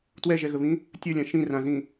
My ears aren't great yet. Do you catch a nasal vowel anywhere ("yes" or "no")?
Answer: yes